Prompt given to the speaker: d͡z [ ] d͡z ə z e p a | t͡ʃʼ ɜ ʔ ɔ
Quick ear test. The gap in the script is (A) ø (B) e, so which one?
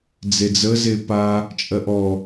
B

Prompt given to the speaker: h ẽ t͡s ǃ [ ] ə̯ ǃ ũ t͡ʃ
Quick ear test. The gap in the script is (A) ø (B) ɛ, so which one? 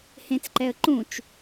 B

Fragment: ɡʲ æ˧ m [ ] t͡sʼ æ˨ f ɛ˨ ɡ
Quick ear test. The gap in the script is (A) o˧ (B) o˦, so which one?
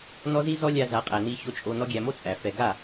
B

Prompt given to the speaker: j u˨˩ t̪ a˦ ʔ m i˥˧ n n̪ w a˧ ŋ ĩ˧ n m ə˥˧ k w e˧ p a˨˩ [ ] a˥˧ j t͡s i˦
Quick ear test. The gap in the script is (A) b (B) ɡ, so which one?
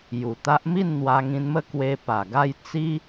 B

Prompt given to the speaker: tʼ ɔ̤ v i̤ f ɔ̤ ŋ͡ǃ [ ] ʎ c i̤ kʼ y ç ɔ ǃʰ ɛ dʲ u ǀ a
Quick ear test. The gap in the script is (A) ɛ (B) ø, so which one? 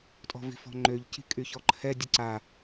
B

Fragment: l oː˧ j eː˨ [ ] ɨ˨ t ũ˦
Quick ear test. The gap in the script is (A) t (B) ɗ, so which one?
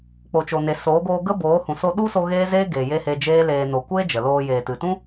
A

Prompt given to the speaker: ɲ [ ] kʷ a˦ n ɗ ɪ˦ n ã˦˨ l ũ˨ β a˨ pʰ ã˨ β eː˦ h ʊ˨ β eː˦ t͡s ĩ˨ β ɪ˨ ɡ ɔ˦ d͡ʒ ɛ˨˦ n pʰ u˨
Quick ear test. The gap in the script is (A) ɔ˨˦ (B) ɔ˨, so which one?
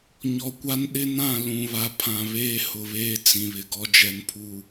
B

